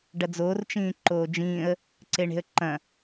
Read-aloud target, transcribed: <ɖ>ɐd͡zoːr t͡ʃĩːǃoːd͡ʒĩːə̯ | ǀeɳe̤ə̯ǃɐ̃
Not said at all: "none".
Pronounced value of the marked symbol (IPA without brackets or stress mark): ɖ